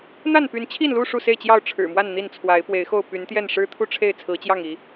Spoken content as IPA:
n̪ a˥˨ n p y˨˦ n t͡ɕʰ i˥˨ n l u˥˨ ʂ u˥˨ s e˥˨ ɪ̯ t͡ɕ j ɑ˥˨ ʊ̯ ʈ͡ʂʰ ɻ̩˨˩ m w a˥˨ n n̪ i˥˨ n t͡sʰ w a˨˦ ɪ̯ p w e˨˦ ɪ̯ x o˥˨ ʊ̯ p y˨˦ n t̪ j ɛ˥˨ n ʂ ɻ̩˦ t̪ʰ u˥˨ ʈ͡ʂʰ e˥˨ ɪ̯ t͡sʰ ɹ̩˨˦ t͡ɕ j ɑ˥˨ ŋ i˨˦

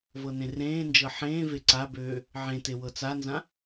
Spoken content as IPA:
v ɤ n ẽ r ẽː n d͡ʒ ɤ ħ ẽː v e ǀ a b øː | ʕ ẽ t e w ɤ t͡s a n z ã

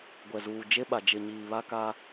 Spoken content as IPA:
ɡʷ ɛ˨ z uː˨ d͡ʒ e˦ ɓ a˨ d͡ʒ ɪ˨ ɲ iː˨ β a˦ k aː˦

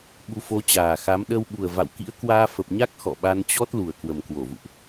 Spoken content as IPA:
ɓ u˧ f o˧ t͡ɕ aː˨˩ x a˨˦ m ɗ ə˧ w ɓ u˨˩ ə̯ v a̰˧˨ w k ḭ˧˥ ə̯ k w aː˧ f ə˨˩ p̚ ɲ a˦˥ k̚ x ɔ̰˧˨ ɓ a˧ n t͡ɕ ɔ˦˥ t̚ l u˨˩ ə̯ k w ə˨˩ m k w o˧˩ v ṵ˧˨ ʔ

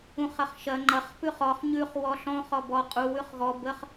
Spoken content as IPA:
ũ χ ɐ χ ʃ ɐ ŋ͡ǃ ɐ χ p ʉ χ ɔ χ ɲ ʉ χ w ɔ ɬ ɔ̃ χ ɔ b ɔ qʼ u w ʉ χ ɣ ɔ b ə χ

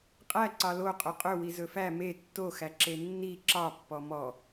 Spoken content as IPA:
qʼ æ ǀ ɑ l o qʼ ɵ qʼ ɵ w i z ɵ f æ m e tː o x æ ǁ e nː i ǁ ɑ pː ɔ m ɔ

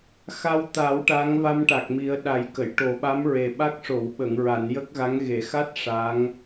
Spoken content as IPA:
x a˧ w t̪ a˨˩˦ w ʈ a˧˥ ŋ v a˧ m ʈ a˨˩ k̚ m i˨˩˦ ə̯ ɗ a˨˩˦ j k ə˨˩˨ j ʈ o˨˩˦ ɓ a˧˥ m ɹ e˨˩ ɓ a˦˥ k̚ ʂ o˨˩˨ w ɓ ə˨˩˨ ŋ ɹ a˨˩˨ n j ə˦˥ k̚ ɣ a˧˥ ŋ ɣ e˨˩˨ x a˦˥ t̚ ʂ a˧˥ ŋ

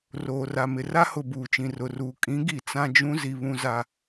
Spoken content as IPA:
r oː˨ r a˨ m ɪ˨ r a˦ h ʊ˨ b uː˨ t͡ʃ ĩ˨ r ʊ˨ r uː˨ kʼ ĩ˨˦ ɡ i˨ t͡s ã˦ d͡ʒ ũ˦ z i˨ β ũ˦ z a˦

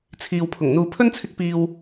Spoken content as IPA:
t͡sʰ iː˨ w pʰ ʊ˨˩ ŋ n̪ uː˨ pʰ ɵ˥ n t͡sʰ ɪ˧ k̚ p iː˨ w

